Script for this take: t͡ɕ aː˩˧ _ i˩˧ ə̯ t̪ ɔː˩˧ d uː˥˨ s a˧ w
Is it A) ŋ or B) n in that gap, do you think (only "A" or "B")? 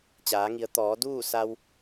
A